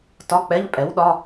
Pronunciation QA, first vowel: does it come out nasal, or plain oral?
oral